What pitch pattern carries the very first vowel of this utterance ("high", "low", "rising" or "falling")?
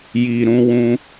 low